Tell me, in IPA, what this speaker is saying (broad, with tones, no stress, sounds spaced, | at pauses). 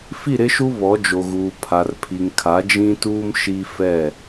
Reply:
f i˦˨ ɾ ɪ˦ ʃ u˦ β ɔ˨˦ d͡ʒ o˨ ɣ uː˨ pʰ a˨ r pʰ i˨ ŋ kʰ a˨˦ d͡ʒ ĩ˦ t uː˦ m ʃ i˦ f ɛ˦˨